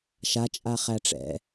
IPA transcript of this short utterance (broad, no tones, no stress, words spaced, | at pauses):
ʃa t͡ʃʼaχæʈ͡ʂɛ̰